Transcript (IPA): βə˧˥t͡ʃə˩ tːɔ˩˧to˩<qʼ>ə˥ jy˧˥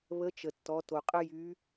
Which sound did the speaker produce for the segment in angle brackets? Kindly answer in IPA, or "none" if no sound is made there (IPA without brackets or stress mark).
qʼ